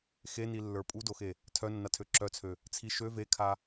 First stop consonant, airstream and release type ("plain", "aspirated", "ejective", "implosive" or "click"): ejective